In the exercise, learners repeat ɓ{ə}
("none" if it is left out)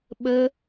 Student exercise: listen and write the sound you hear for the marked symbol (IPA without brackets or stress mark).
ə